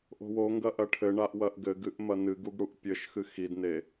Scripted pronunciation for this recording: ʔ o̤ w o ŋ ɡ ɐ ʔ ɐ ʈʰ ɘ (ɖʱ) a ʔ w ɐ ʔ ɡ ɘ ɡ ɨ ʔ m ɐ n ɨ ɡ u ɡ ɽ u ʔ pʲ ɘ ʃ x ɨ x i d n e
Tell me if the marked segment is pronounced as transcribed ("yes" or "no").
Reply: no